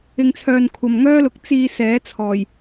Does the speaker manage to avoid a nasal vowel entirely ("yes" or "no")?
yes